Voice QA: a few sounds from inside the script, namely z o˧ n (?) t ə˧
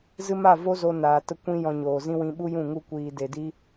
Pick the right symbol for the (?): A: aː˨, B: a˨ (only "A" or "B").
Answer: A